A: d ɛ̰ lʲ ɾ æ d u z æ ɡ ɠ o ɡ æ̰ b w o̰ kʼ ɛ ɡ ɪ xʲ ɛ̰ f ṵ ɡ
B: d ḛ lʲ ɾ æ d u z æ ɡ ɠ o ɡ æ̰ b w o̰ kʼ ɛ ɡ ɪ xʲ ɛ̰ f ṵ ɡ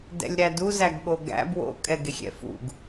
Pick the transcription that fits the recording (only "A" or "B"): A